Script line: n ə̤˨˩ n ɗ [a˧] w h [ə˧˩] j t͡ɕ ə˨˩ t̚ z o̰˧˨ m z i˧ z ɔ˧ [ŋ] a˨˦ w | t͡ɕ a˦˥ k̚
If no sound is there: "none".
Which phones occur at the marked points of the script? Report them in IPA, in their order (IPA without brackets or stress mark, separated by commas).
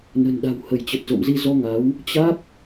a̤˨˩, ə˧˩, ŋ